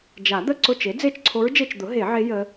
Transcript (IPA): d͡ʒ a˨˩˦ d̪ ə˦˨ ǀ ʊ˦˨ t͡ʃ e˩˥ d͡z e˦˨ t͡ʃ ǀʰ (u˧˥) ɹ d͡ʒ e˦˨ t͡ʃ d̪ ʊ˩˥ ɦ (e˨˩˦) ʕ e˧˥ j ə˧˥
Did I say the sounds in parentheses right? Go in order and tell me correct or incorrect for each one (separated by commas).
incorrect, correct